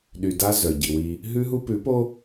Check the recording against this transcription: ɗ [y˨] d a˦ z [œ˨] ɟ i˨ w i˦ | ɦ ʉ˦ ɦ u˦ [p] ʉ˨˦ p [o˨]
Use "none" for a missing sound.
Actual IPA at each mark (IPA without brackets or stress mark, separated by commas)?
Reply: y˨, œ˨, p, o˦